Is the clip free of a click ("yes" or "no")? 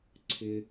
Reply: no